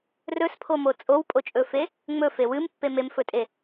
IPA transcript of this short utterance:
r ɵ s pʰ o m o t͡sʼ o w pʼ o t͡ʃʼ ɵ f e | ŋ͡m ɵ f e w ɨ m pː e m e m f ɵ tʼ e

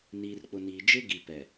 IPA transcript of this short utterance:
n iː˨ r k͡p ʊ˨ n iː˨ d͡ʒ ɪ˦ ɡ i˨ p ɛ˨

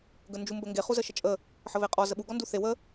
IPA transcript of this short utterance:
ɡ ə n d͡ʒ u m b ə ŋ ɡ e χ u z ə ʃ ə t͡ʃʼ ə | ħ ə β e qʼ ɔ z ə ɓ u ɡ ɔ n d u θ e w ə

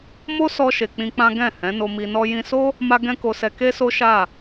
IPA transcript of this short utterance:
m o˦ s ɔ˧ ʃ e˨ k͡p ĩ˧ k͡p ã˦ ɡ ɛ̃˦˨ h ɛ̃˨˦ n o˧ m i˧ n ɔ˦ j ĩ˧ s o˦ | m a˧ ɡ ɛ̃˦ k o˧ s ɛ˧ k e˦ s o˦ ʃ a˦˨

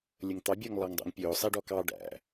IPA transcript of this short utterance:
lʲ ə ŋ t̪ ɑ bʲ ʊː ŋ lˠ ɑ ŋ dˤ æ̰ ŋ pʲ ʊː sˤ i ɖ ɔ k ɑ ɖ æ̰

